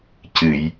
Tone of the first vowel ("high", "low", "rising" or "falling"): low